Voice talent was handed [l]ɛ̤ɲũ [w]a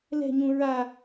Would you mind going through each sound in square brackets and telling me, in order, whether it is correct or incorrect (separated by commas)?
correct, incorrect